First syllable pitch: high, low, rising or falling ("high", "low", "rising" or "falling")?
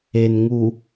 low